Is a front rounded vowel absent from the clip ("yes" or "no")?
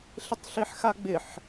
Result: yes